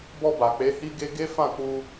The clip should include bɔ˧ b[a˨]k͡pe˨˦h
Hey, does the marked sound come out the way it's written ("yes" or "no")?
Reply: yes